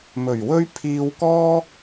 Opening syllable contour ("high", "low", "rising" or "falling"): low